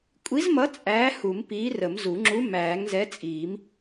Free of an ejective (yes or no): no